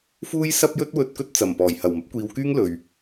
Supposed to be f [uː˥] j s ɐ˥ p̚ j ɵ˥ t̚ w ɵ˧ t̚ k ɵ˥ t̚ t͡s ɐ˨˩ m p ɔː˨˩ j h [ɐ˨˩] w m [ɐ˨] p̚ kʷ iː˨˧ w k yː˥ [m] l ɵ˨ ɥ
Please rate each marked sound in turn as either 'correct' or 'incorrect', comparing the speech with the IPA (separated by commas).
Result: correct, correct, incorrect, incorrect